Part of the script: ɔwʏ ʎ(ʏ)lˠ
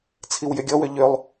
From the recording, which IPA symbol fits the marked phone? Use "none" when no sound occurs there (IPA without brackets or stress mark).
ʏ